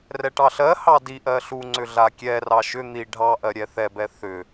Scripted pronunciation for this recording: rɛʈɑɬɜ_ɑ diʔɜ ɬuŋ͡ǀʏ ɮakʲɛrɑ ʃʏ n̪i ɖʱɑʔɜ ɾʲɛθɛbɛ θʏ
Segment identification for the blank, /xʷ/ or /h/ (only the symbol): h